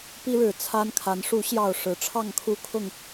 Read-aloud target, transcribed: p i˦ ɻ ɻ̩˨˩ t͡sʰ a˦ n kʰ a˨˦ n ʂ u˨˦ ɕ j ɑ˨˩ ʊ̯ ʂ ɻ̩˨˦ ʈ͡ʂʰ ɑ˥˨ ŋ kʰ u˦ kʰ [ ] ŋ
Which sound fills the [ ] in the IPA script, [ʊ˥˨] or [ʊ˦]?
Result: ʊ˥˨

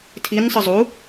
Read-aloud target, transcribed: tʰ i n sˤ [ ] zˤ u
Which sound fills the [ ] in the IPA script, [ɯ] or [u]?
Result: ɯ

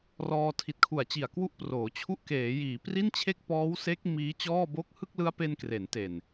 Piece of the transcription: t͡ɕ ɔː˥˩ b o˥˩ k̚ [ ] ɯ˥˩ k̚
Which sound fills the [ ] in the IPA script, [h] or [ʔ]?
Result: h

